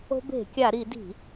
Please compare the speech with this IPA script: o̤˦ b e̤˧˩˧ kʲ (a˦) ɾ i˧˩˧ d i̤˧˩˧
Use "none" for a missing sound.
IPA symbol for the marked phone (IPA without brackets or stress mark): a˧˩˧